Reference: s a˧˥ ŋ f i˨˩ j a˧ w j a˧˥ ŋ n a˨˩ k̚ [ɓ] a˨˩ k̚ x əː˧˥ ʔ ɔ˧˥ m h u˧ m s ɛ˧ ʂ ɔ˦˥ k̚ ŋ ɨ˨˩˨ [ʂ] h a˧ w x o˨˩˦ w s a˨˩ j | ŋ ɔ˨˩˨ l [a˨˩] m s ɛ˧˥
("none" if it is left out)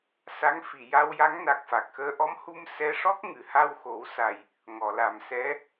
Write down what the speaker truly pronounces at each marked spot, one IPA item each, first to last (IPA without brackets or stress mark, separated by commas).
f, none, a˨˩